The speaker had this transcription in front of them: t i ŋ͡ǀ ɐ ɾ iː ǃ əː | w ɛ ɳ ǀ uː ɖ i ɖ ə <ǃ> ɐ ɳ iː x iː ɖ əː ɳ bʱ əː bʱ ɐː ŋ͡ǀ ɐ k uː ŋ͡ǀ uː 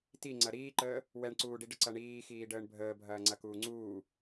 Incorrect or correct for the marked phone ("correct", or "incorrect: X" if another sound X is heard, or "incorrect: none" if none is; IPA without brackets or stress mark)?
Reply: incorrect: ǀ